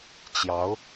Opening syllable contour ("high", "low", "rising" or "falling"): rising